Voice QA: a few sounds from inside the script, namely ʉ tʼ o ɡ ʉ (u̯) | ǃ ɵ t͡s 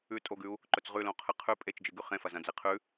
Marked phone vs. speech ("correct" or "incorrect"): correct